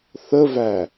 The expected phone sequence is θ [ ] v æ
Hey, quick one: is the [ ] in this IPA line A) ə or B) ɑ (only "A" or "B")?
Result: A